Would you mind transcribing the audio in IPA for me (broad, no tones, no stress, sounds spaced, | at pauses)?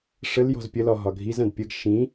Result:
ʂ ə l j ɔ̤ z pʲ ə l ɒ ɦ ɒ ɡʱ i z ɐ̃ d pʲ ə ɡ ʃ ĩ